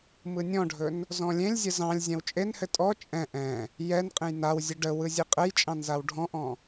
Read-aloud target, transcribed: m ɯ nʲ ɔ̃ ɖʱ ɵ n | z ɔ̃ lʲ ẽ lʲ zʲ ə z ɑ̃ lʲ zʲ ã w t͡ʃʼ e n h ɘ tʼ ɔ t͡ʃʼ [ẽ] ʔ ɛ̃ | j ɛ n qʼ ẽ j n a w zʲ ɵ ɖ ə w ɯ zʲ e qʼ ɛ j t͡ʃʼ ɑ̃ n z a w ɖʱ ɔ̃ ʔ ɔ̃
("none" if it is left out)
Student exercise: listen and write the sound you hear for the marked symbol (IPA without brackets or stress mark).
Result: ɛ̃